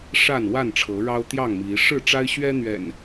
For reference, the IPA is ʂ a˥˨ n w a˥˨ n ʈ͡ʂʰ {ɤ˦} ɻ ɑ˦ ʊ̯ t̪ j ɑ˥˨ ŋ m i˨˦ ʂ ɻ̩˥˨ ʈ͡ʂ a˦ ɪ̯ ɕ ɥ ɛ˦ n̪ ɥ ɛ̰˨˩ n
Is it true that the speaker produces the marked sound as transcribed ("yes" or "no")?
no